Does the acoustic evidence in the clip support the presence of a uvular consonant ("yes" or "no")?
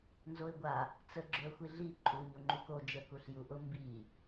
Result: no